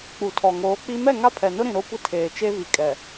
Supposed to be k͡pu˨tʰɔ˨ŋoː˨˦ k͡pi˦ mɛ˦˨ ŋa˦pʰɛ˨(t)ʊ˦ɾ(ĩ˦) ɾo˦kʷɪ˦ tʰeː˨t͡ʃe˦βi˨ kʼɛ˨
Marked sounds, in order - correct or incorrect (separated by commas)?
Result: incorrect, incorrect